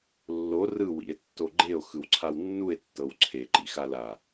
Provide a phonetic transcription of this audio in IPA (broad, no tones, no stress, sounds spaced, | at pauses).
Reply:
lː o r ɯ w ḭ e̯ tː o ɡ͡ǃ e o̯ x ɯ w ǀʰ a w nː u e̯ tː ɤ w ǀʰ e ǃ ḭ x a l a